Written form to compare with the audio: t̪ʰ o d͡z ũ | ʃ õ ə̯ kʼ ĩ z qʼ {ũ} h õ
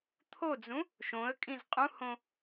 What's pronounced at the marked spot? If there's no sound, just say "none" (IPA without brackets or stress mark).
ũ